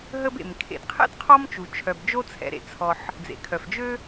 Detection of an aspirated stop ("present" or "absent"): present